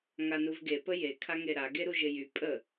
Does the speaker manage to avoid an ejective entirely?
no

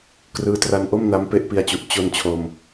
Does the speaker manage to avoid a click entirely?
yes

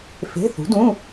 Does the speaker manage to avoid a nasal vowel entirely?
no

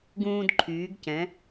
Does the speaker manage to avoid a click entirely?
no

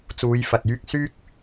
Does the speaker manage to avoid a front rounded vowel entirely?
no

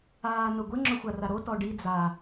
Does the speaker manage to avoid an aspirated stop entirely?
yes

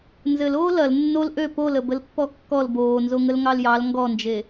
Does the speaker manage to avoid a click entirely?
yes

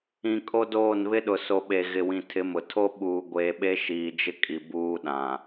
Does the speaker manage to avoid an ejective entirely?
no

